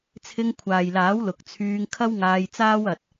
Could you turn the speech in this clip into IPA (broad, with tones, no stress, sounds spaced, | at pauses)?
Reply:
t͡sʰ ɪ˧ ŋ kʷʰ aː˨ j l aː˨˥ w l ʊ˨ k̚ t͡sʰ yː˧ ŋ kʰ ɐ˥ w ŋ aː˧ j t͡s aː˥ w ɐ˧ t̚